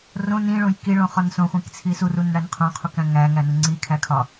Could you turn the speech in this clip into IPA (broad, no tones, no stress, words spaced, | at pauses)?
rõ nĩɭõj kiɭõχɒn sõχʷĩk t͡sʰisurun ɽænqʰõqʰukæ̃ ŋæ ŋænuŋ͡ǀi kʰækʰɒ